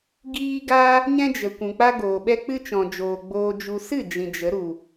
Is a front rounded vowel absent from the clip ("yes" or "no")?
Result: yes